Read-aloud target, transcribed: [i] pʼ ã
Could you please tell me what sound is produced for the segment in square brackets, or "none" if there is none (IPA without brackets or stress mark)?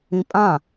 ĩ